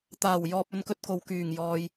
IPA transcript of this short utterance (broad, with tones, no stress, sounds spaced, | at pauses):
t̪ aː˨˩ w j ɔː˨ p̚ ɵ˨˧ n k ɵ˧ t̚ k o˨ w k yː˨˩ ŋ j ɔː˨ j